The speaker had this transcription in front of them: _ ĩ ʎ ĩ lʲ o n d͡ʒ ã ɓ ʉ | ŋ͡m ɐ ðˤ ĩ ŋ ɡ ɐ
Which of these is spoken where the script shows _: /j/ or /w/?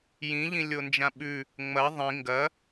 j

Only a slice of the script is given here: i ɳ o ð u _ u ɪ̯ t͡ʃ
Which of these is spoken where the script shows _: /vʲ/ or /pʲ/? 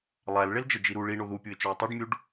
pʲ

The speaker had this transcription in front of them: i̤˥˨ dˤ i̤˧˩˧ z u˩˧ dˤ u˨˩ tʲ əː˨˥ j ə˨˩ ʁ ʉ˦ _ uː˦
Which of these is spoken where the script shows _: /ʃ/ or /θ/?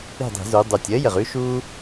ʃ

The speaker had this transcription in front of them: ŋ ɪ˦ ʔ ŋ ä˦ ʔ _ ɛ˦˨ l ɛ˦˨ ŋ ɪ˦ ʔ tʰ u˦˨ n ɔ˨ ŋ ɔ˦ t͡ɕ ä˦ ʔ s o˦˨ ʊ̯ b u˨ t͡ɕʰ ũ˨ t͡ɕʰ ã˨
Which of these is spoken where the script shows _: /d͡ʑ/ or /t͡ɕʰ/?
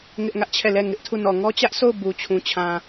t͡ɕʰ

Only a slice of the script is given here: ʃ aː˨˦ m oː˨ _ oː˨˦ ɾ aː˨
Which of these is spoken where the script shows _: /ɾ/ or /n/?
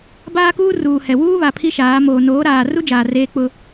n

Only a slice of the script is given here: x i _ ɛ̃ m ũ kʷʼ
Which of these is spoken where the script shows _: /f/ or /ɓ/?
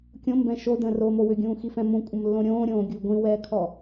f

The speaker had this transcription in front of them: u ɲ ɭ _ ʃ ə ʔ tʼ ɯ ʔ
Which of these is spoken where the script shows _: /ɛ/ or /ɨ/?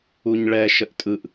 ɛ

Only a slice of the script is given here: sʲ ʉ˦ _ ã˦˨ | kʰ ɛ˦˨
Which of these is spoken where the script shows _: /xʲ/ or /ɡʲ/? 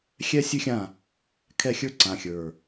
xʲ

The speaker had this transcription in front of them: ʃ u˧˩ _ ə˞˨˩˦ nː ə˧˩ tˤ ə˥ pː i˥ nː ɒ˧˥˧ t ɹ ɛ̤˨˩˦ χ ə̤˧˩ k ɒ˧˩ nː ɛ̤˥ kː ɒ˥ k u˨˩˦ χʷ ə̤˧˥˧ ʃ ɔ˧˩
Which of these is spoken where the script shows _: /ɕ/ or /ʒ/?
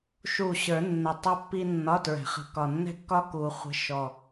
ɕ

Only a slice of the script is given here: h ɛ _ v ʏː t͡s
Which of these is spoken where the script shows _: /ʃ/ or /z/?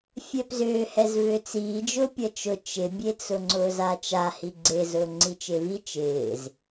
z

